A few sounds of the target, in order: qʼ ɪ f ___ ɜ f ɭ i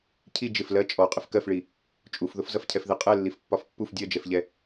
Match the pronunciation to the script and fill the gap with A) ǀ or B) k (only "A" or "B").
B